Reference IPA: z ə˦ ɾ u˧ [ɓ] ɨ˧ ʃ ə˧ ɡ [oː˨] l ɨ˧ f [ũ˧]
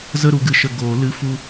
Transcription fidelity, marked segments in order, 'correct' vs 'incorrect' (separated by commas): incorrect, correct, incorrect